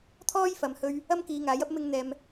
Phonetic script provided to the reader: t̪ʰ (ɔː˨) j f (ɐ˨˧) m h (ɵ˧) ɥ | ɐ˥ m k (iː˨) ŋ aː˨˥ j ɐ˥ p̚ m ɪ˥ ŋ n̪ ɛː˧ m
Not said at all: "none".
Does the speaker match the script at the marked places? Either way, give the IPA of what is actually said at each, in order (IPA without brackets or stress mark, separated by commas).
ɔː˥, ɐ˨, ɵ˧, iː˨˧